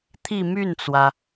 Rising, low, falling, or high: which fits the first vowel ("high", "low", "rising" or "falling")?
falling